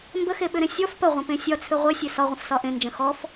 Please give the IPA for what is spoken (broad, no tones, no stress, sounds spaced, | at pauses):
m b ə x e ɓ ʏ ɾ ẽ sʲ ɔ f p ə ʁʷ ə̃ p ẽ sʲ ɒ t͡sʰ ʏ ʁʷ e sʲ e s ɒ ʁʷ ə̃ f s ɒ ʔ ẽ n d͡ʒ ə̃ x ɔ f